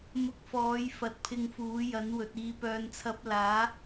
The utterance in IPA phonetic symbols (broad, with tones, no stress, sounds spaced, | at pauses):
m ʊ˧ k̚ f ɔː˨˥ j f ɐ˨˥ t̚ pʰ ɪ˧ ŋ f uː˨˥ j ɐ˨˥ n w ɵ˨ t̚ iː˨ p œː˨ n t͡sʰ ɐ˨˥ p̚ l aː˨˥